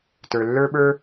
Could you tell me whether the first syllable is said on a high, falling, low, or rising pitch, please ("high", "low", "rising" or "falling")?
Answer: low